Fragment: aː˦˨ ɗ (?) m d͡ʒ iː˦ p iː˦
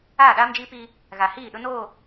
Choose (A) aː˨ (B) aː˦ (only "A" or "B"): B